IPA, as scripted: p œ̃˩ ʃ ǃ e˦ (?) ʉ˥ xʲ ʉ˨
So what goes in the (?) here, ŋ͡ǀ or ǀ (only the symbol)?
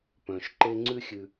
ŋ͡ǀ